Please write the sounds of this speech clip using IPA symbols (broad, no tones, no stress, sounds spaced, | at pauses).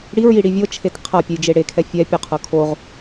ɽ i ɹ j i ɽ i vʲ ɤ t͡ʃʰ e t qʰ a pʲ u j d͡ʒ e ɽ e kʰ ɛ fʲ ɛ pʲ u qʰ ɤ kʰ o ʁ